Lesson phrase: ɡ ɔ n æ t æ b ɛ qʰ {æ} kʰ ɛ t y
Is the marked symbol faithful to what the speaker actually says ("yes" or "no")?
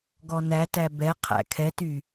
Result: no